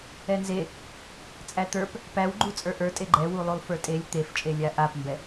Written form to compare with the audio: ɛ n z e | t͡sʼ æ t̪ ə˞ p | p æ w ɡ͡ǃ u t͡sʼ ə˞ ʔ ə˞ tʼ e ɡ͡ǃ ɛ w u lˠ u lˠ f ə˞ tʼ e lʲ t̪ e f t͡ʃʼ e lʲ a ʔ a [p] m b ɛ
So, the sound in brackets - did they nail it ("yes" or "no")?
yes